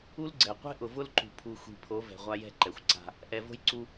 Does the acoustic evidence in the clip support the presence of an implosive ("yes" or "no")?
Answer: no